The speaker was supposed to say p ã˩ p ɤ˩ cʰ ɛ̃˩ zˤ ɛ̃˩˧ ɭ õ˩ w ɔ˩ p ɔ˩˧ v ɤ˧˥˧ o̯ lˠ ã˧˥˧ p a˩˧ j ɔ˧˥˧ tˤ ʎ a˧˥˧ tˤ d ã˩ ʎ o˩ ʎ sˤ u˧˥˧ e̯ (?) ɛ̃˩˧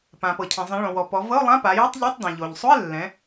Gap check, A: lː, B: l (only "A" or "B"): A